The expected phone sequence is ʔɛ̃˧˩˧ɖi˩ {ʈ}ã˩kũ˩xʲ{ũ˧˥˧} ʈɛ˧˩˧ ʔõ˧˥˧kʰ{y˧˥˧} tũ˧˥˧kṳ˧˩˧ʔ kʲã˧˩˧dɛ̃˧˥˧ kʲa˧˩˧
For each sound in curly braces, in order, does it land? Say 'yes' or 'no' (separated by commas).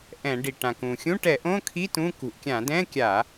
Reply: yes, yes, no